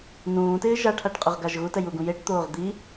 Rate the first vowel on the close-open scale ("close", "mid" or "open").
close